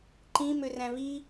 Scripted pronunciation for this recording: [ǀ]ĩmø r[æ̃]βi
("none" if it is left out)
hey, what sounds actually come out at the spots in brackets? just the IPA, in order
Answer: ǃ, æ̃

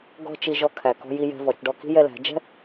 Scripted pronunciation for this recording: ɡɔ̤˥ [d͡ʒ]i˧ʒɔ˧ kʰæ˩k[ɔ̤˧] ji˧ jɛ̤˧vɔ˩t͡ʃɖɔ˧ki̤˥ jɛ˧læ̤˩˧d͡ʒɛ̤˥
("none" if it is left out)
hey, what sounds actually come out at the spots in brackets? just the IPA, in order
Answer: t͡ʃ, ɔ̤˧

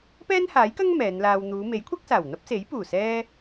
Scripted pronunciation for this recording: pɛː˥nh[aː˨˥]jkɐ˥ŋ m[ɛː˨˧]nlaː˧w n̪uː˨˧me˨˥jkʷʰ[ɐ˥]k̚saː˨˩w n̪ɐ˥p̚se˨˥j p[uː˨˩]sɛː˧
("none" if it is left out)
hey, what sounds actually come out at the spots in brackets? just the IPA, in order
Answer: aː˨˥, ɛː˨˧, ɐ˥, uː˨˩

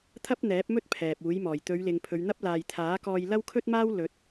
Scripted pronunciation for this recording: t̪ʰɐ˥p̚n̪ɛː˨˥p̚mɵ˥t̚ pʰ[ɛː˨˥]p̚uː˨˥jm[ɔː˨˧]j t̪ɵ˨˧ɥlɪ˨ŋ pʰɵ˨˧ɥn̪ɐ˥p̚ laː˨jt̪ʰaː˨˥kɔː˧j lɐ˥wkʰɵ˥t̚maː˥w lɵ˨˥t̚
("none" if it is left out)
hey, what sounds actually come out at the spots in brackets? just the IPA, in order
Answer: ɛː˨, ɔː˨˩

